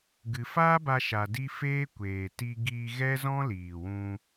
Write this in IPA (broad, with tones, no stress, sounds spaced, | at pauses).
ɡ ɨ˧ f aː˦ b a˧ ʃ a˧ d i˦ f eː˦ kʷ eː˨ t i˧ ɡ iː˧ ɣ ɛ˦ z ɔ̃˦ l iː˨ w ũ˧